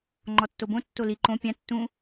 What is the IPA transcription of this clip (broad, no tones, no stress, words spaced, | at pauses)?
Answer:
ŋ͡ǃɔtːobõ tːoli ǃõ pʲã tːũ